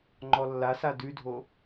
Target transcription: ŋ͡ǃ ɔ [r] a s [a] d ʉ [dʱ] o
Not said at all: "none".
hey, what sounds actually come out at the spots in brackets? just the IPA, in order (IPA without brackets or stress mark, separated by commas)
lː, a, dʱ